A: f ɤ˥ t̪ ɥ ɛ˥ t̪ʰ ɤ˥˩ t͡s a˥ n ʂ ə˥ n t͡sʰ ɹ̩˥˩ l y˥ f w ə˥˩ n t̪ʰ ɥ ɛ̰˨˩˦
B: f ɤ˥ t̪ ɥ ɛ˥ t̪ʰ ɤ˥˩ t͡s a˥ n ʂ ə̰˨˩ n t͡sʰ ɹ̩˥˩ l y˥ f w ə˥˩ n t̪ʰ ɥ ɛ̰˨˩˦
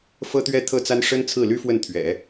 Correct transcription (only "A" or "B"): A